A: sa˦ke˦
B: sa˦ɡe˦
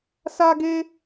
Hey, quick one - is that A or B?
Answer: B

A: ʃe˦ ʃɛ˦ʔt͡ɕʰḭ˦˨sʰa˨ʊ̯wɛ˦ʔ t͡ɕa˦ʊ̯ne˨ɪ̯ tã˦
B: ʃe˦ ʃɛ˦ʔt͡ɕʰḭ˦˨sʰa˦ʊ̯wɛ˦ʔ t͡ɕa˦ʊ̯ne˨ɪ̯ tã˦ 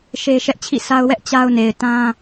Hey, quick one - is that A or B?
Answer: B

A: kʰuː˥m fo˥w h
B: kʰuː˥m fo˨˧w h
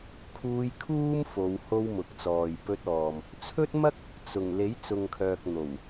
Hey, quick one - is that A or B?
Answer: B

